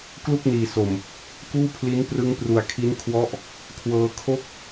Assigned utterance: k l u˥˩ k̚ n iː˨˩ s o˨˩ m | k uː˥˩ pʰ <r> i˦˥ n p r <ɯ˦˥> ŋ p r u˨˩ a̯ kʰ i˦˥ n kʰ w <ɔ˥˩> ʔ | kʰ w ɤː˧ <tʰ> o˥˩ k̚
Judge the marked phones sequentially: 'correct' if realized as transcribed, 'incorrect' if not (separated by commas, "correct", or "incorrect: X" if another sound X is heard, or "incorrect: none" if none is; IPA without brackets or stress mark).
incorrect: l, correct, incorrect: ɔ˦˥, incorrect: kʰ